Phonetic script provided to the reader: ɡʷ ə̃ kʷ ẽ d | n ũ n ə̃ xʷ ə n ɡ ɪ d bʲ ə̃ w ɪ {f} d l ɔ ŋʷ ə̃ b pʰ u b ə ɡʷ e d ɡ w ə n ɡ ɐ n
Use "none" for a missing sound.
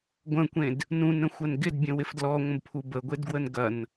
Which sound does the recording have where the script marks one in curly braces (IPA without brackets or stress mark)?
f